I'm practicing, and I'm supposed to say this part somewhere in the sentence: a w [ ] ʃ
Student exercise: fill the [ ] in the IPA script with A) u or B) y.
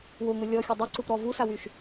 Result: B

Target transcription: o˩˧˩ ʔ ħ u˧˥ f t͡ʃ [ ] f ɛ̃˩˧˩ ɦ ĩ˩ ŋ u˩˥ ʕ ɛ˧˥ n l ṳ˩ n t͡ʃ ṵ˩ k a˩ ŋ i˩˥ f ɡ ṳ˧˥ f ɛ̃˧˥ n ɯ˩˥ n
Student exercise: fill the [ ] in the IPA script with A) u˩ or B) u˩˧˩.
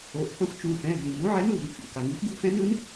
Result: B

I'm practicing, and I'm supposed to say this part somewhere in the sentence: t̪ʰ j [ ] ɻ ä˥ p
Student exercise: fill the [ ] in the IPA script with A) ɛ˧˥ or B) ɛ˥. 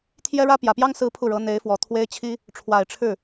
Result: B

